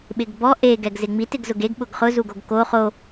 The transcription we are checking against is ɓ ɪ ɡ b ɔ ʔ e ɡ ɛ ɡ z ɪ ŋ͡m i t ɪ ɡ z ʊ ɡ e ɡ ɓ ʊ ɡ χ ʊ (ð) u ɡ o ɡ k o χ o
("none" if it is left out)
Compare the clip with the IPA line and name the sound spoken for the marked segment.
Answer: z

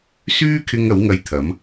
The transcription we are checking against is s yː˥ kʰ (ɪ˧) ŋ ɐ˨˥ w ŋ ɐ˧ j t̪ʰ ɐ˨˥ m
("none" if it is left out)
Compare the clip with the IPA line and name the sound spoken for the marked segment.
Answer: ɪ˧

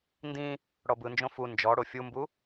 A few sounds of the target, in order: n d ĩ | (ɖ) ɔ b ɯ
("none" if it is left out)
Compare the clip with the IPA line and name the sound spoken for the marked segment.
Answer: ɽ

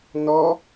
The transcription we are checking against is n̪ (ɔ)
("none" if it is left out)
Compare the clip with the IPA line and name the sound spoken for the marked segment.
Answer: ɔ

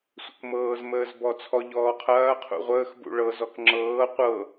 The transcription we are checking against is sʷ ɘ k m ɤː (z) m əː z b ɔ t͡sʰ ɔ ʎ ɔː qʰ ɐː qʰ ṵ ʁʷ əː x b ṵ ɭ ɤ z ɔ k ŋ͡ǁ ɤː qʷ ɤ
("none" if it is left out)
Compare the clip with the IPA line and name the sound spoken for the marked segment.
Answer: z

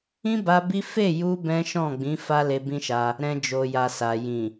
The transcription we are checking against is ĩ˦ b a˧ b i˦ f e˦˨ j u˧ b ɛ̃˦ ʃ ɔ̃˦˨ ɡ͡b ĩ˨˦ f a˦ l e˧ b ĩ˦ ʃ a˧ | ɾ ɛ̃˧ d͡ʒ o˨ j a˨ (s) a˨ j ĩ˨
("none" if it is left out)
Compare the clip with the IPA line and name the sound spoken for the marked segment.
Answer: s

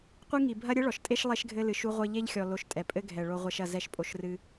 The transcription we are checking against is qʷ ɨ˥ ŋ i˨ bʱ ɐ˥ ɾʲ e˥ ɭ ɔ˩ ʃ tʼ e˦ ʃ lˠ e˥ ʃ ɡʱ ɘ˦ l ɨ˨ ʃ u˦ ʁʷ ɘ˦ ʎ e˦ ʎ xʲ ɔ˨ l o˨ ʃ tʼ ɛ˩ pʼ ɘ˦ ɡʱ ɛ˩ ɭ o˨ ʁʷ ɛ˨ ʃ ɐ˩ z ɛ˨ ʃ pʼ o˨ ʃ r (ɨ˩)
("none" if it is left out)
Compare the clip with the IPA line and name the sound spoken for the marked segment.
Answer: ɨ˨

